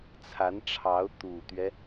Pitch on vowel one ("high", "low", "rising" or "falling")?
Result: rising